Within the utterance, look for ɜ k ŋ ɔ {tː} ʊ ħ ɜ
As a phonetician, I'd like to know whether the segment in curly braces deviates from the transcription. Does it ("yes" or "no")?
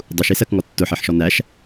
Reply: no